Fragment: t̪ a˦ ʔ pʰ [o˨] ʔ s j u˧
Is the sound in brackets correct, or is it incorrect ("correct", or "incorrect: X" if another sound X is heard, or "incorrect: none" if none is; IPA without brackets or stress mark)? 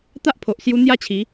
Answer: correct